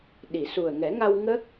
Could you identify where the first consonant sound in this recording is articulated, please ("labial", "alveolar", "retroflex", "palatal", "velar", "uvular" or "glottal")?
alveolar